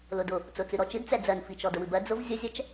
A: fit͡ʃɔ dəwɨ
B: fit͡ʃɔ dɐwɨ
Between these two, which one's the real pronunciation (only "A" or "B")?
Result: A